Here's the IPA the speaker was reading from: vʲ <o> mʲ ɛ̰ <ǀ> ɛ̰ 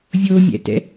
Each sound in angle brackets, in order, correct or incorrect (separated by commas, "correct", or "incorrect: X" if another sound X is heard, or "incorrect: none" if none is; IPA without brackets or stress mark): correct, incorrect: t